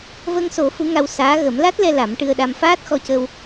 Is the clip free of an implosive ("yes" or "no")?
no